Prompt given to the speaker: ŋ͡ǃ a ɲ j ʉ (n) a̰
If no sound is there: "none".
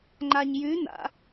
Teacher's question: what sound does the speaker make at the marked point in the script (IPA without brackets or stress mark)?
n